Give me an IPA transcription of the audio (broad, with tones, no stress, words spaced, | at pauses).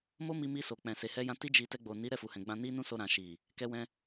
mo˦mi˧mi˧so˨ k͡pɛ̃˨ se˨hɛ˧jã˧ ti˦d͡ʒi˧ tɛ˧ɡ͡bo˨ni˨˦ ɾɛ˦˨fu˨hɛ̃˨ɡ͡bã˧ ni˦nũ˦so˧ ɾã˨ʃi˨ | kɛ˧wɛ̃˧